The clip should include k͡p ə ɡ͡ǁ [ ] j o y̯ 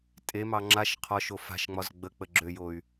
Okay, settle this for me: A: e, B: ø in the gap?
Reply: B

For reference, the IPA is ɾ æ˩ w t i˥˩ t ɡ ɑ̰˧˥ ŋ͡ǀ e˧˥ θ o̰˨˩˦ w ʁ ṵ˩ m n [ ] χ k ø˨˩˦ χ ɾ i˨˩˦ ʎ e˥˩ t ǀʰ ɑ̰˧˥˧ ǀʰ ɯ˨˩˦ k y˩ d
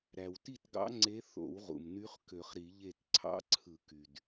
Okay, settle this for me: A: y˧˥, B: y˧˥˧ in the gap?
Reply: A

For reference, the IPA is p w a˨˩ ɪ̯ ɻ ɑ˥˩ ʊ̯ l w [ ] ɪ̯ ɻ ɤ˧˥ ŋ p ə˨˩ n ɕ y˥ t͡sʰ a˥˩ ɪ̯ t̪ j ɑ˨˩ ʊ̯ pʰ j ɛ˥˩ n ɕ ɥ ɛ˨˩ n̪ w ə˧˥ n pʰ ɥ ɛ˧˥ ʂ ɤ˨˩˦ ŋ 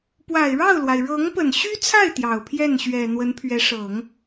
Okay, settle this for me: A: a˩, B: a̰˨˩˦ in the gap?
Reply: A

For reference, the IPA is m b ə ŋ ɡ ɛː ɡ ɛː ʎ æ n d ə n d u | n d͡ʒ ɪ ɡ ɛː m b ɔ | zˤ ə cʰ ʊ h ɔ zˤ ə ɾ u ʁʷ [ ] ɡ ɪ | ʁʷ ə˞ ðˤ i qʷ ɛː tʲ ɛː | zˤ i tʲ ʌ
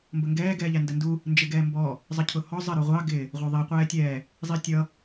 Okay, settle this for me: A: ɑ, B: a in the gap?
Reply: A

